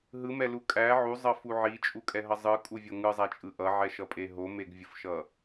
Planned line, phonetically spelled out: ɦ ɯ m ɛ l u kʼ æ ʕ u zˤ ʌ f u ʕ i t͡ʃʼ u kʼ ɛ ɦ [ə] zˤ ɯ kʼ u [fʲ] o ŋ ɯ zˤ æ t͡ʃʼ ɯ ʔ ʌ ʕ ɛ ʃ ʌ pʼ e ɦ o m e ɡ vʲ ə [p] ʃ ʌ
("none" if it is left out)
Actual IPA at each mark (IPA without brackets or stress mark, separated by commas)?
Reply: ʌ, vʲ, f